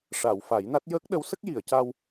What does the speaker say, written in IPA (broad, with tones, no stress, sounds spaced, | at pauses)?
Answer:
ʂ a˨˩˨ w f a˨˩˦ j n a˦˥ t̚ j əː˦˥ k̚ ɗ ə˧˥ w s ə˦˥ k̚ j i˨˩˨ ə̯ c a˧ w